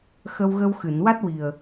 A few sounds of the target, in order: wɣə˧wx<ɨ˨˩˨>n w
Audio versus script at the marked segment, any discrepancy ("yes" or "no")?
no